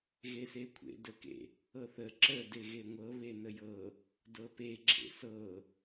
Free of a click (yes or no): no